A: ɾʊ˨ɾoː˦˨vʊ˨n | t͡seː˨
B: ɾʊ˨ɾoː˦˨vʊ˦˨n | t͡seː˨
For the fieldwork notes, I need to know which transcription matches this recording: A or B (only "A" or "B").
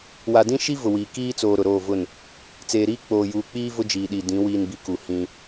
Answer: B